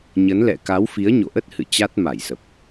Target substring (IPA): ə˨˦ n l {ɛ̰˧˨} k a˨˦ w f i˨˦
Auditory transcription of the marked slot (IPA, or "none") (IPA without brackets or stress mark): ɛ̰˧˨